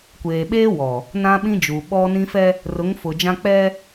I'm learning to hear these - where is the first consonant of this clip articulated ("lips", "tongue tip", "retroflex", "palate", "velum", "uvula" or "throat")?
velum